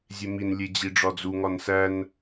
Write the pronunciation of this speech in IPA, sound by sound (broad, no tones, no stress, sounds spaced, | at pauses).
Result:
zʲ e m i n lʲ e d͡ʑ i ɖ͡ʐ ɒ d͡z u ŋ ɒ n s æ n